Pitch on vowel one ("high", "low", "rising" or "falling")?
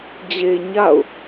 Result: low